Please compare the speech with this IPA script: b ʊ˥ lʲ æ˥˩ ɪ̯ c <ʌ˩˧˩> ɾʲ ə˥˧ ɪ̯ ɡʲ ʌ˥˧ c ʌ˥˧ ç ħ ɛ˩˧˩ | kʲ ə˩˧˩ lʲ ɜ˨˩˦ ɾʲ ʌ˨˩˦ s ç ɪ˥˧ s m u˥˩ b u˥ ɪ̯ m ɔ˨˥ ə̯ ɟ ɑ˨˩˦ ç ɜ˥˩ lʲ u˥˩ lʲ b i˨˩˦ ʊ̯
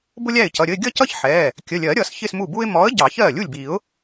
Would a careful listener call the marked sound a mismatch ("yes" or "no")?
no